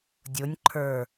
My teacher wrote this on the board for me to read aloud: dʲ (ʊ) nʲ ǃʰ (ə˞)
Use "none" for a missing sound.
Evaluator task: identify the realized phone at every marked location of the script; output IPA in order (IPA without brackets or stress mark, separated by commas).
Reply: ʊ, ə˞